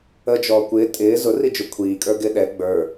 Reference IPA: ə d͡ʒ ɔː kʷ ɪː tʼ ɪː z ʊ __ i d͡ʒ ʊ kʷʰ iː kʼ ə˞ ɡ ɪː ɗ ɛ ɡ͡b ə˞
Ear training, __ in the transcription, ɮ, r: r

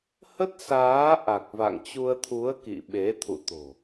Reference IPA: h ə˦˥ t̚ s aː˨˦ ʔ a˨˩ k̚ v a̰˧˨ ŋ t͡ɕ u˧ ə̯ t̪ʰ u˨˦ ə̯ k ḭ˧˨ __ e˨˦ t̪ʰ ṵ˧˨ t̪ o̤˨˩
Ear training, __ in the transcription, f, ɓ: ɓ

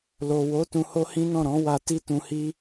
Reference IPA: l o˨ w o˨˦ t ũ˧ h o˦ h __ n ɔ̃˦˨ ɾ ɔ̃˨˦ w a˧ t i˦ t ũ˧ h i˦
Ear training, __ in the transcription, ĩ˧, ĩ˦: ĩ˦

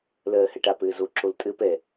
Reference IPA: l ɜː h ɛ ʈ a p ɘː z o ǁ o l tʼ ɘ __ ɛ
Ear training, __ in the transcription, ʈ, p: p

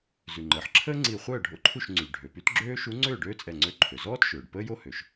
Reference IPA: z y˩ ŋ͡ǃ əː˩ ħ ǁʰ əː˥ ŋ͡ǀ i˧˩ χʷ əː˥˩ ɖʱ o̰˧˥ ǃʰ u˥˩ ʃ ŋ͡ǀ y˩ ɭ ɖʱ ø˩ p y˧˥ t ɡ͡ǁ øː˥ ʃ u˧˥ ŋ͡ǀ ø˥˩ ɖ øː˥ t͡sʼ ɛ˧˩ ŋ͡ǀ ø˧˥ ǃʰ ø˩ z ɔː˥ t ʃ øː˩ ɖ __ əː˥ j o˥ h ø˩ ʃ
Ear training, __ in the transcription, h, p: p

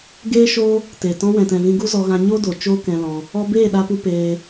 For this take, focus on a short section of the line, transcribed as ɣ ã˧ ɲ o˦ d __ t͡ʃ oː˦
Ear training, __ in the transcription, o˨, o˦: o˨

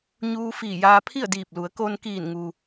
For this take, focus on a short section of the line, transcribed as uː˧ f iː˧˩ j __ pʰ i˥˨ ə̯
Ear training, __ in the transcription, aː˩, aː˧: aː˧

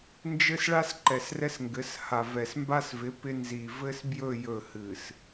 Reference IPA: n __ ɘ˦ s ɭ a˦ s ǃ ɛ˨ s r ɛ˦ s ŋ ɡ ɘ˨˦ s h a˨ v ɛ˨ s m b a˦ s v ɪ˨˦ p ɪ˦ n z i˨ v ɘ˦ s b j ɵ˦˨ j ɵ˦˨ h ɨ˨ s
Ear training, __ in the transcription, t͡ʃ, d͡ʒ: d͡ʒ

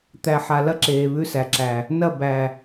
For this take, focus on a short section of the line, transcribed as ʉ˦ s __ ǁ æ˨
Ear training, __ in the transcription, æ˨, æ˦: æ˨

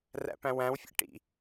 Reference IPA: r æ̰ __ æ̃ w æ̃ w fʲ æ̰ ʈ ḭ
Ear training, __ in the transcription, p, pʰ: p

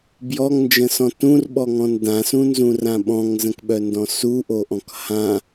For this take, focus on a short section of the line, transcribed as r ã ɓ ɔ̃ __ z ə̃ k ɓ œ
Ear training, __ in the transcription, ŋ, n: ŋ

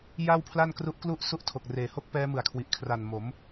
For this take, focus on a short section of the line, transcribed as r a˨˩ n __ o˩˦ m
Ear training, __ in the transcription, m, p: m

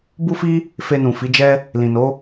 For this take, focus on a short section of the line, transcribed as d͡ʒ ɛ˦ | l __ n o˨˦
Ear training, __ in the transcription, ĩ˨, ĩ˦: ĩ˨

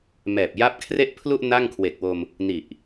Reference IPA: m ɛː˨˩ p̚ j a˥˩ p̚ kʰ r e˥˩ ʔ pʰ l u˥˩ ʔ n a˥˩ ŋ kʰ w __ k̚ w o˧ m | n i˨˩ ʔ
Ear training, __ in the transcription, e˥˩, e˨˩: e˨˩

